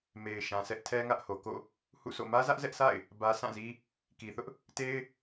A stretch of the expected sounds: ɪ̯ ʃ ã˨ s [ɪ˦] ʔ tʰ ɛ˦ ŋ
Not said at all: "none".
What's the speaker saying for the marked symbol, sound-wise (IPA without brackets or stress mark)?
ɛ˦